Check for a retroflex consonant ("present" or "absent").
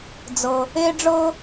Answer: present